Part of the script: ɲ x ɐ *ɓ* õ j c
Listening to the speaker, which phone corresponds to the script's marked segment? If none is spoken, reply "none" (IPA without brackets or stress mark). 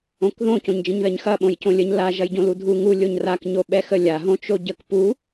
ɓ